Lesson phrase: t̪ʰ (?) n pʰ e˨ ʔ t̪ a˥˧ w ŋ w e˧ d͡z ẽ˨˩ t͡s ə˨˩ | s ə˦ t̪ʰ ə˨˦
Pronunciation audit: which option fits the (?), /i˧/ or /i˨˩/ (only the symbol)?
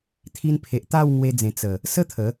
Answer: i˧